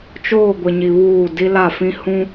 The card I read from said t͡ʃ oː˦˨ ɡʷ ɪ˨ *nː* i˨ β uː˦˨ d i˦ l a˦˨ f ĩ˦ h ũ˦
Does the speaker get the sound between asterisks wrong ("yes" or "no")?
yes